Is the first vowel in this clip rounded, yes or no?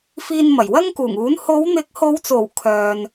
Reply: no